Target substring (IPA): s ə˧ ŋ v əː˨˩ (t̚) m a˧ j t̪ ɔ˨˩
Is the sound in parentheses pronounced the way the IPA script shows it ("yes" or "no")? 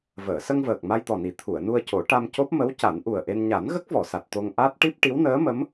no